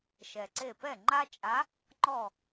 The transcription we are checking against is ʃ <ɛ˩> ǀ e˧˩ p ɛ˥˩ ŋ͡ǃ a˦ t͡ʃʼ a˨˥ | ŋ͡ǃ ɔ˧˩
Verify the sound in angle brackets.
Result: correct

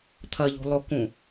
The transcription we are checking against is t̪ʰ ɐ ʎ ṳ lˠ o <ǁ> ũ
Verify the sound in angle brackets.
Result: incorrect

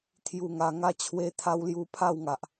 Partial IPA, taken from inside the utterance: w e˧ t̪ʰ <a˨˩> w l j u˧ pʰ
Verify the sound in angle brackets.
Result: incorrect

